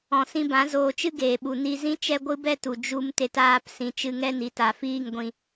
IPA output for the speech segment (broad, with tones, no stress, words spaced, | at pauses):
ɔ̃˨sĩ˧bã˨˦ zoː˧t͡ʃɨ˦ɡeː˨ɓu˨ ni˧zĩ˦ t͡ʃɛ˦ɡʷɨ˦bɛ˦tu˨ d͡ʒu˦mte˦taː˦p sĩ˨t͡ʃɨ˧ŋɛ˦˨n i˨ta˨fiː˦˨ŋ ɡʷĩ˧